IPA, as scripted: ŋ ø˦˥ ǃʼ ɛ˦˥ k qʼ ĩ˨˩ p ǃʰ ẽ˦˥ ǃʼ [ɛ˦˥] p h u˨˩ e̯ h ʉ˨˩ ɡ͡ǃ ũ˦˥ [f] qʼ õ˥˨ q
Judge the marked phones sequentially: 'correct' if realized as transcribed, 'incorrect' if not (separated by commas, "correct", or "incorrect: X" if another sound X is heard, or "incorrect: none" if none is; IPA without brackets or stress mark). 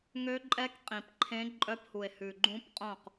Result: incorrect: œ˦˥, incorrect: p